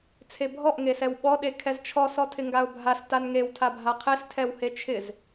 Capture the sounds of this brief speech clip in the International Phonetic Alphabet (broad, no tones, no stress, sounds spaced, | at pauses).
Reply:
t͡sʰ e bʱ ɔ ʔ ŋ e s ɛ w ɓ ɔ ɗ e kʰ ɛ z t͡ʃʰ ɔ s ɔ tʰ ɪ ŋ ɡ a ʊ̯ bʱ a s t a n ŋ e w tʰ a bʱ a qʰ e s tʰ ɛ w h e t͡ʃʰ ɪ z